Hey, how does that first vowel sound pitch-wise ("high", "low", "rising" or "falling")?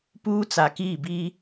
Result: high